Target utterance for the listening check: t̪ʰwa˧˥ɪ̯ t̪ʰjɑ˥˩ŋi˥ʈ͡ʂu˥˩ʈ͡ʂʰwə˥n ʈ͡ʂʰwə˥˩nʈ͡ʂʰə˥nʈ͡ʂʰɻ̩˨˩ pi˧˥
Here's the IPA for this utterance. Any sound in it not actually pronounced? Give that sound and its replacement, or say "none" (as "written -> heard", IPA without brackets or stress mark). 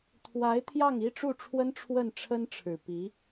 none